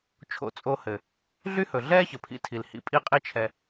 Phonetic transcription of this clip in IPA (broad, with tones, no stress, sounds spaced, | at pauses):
t͡ʃʰ o̰˧ t͡sʼ o˧ h ɘ˨ | ɮ y˦ h ɵ˨ ɮ ɛː˦ ç ə˨ pʰ ḭ˧ tʰ i˨ l h ḭ˧ pʼ i˦ qʼ i˦ t͡ʃʰ ɛ˧